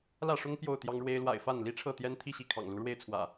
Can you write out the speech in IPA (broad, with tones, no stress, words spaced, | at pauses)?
lä˥˨ʂʊ˦ŋ pjo˥˨ʊ̯t̪jɑ˦ŋɻwe˦ɪ̯ lwa̰˨˩ɪ̯ fa˥˨nli˦ʈ͡ʂʰɤ˥˨t̪jɛ˦n t̪ʰi˥˨ɕi˥˨kʰɑ̰˨˩ŋ lu˨˦ɻwe˥˨ɪ̯t͡sʰwä̰˨˩